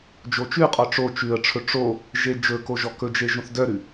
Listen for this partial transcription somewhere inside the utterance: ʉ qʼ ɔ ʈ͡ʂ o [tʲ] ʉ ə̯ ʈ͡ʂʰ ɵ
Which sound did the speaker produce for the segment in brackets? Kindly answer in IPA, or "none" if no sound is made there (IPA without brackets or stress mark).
t͡ʃ